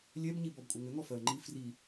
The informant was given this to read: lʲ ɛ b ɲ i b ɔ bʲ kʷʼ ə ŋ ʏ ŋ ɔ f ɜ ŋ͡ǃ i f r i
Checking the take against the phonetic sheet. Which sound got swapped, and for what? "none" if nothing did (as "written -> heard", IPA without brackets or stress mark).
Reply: bʲ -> b